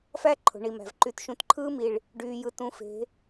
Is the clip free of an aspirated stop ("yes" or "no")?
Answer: no